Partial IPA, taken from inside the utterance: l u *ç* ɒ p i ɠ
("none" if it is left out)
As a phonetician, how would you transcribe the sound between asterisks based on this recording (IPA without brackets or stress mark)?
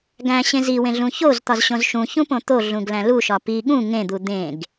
ʃ